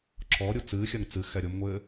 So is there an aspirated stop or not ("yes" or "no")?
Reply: no